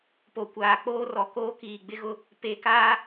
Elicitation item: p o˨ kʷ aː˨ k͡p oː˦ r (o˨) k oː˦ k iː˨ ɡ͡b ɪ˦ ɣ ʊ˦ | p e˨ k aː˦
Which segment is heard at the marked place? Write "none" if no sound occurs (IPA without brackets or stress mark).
ɔ˨